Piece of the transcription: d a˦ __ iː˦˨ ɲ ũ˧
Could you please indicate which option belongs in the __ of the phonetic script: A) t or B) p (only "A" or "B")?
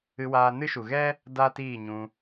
A